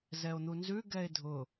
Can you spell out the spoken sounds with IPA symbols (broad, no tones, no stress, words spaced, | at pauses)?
zɛo̯n̪unzʉ ɡɛe̯dʱʊ